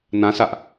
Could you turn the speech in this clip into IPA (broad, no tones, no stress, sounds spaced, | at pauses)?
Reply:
n ã s a ʔ